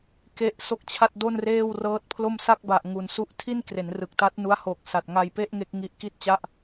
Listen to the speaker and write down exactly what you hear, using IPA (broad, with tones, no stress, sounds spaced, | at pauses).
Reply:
k e˥˩ ʔ s o˥˩ k̚ t͡ɕʰ a˥˩ t̚ d o˥˩ n r eː˥˩ w r ɤː˦˥ t̚ pʰ l o˥˩ m s a˥˩ k̚ b a˨˩ ʔ ŋ u˨˩ n s u˦˥ ʔ tʰ i˥˩ n k r e˩˦ n r ɯ˨˩ k̚ t a˦˥ t̚ n u˦˥ a̯ h o˨˩ k̚ s a˨˩ t̚ ŋ a˧ j p e˥˩ ʔ ŋ e˦˥ k̚ ŋ i˦˥ ʔ k i˥˩ t̚ t͡ɕ a˥˩ ʔ